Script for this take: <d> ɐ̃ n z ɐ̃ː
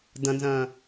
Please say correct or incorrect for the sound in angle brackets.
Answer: correct